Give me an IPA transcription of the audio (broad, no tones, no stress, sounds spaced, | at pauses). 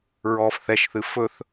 ɹ ɔː f θ ɛ ʃ θ ɨ f ɵ θ